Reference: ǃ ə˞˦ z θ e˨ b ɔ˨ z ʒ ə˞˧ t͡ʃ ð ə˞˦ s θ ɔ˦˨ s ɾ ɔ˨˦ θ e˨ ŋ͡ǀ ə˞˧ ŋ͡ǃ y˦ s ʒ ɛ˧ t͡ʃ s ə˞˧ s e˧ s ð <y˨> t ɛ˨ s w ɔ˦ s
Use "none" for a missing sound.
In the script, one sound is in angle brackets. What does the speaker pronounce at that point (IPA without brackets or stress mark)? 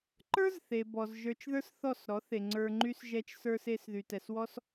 y˨